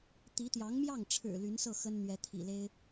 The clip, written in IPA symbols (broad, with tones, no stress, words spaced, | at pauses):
t̪i˧˥t̪jɑ˧˥ŋmjɑ˥˩ŋʈ͡ʂʰɻ̩˨˩ ly˧˥nsɤ˥˩ xə˥n n̪ɥɛ˧˥t̪ʰḭ˨˩le˥ɪ̯